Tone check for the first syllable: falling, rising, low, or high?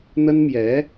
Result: high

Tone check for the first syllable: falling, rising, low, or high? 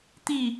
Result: low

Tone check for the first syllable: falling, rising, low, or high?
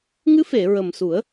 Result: rising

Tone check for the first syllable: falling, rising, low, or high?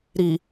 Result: low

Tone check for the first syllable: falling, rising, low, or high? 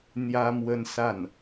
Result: high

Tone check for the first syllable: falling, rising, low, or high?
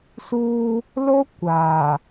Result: high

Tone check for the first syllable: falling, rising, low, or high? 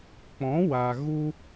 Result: rising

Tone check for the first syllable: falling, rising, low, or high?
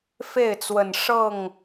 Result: falling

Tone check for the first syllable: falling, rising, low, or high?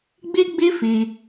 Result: high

